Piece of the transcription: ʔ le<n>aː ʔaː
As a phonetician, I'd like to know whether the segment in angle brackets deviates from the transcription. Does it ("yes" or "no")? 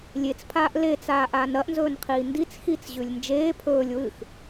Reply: yes